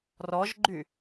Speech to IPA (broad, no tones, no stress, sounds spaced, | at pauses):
r ɔ ʒ ɡ͡ǃ y